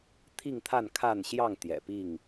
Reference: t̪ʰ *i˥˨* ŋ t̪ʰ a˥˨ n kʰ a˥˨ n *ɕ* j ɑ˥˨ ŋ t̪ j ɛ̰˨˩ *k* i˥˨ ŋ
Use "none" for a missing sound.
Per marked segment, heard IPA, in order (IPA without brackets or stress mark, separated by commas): i˥˨, ɕ, p